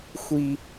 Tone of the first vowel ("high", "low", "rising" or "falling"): low